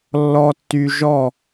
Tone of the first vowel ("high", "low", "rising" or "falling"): low